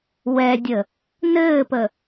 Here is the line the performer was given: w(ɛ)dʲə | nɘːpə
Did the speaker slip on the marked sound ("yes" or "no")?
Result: no